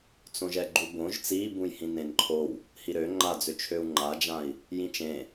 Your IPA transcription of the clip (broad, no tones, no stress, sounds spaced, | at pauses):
t͡s õ ʒ ɛ ɡ͡ǃ u b õ ʒ t͡s i b ũ j h ĩ n ẽ n ǃʰ o w | h i ɾ ø ŋ͡ǃ a d͡z ø t͡ʃʰ ø u̯ ŋ͡ǃ a d͡ʒ ã i̯ | j ĩ t͡ʃ ẽ